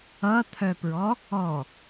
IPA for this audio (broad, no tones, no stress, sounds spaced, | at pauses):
ʌ t̪ʰ œ p ɹ ɔ | ɔ